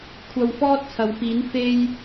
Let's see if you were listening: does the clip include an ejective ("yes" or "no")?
no